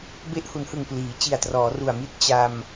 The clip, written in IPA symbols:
b e˦˥ ʔ h u˩˦ n h ɯ˨˩ ŋ p l iː˩˦ t͡ɕ i˨˩ a̯ t r ɔː˩˦ r u˨˩ a̯ m i˦˥ t̚ t͡ɕ a˧ m

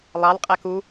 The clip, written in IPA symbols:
lˠ ɑ l qʼ æ k u

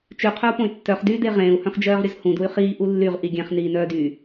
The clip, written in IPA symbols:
t͡ʃ ʉ qʰ œ u̯ p õ y̯ tː œ χ d yː d e ʁ ẽː u̯ h œ̃ χ d͡ʒ œː ʁ ɾʲ ɵ z h ũ d u y̯ χ iː ʔ u lː y ʁ ʔ i ɡʲ ɛ̃ χ n iː n œː d y

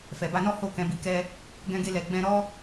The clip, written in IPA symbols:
f ɛ˨ b a˧ n ɔ˦ h o˦˨ k ɛ̃˨˦ b i˧ k ɛ˦ | ɡ ɛ̃˧ ɡ e˧ l ɛ˨ ɡ͡b ɛ̃˧ ɾ ɔ˦

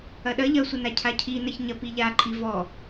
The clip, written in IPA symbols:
ɐ ɗ ɐ ʎ ɐ sʷ ɘ n a cʰ a cʰ i n ɐ ç ɲ ɐ p i ʎ a ǃʼ i v ɔ

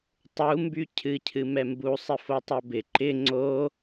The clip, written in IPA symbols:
tˤ u m b y cʰ ɨ cʰ ɨ m ɛ m b u sˤ ɪ f o tˤ o b ɪ ǃ ɪ ŋ͡ǀ o

